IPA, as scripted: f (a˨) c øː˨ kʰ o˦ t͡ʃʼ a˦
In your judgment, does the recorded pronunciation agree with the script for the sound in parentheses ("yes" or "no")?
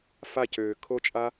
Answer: no